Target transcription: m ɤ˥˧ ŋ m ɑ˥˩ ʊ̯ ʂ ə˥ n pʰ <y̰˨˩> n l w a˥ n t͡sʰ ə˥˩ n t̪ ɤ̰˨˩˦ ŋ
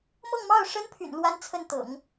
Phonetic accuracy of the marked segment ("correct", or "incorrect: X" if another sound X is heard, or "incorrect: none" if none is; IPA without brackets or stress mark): correct